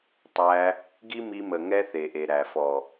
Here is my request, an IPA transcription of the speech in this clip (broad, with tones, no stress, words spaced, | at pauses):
tˤæ˧ | ɡi˦mi˧mə˨ ŋɛ˦ θe˨ʔe˨ɾæ˨ fɔ˨